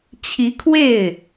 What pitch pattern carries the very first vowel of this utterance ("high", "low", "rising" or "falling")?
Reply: rising